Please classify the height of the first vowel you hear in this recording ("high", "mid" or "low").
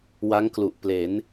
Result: low